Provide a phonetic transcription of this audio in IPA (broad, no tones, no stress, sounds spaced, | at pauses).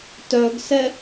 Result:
t œ ɡ s ɛ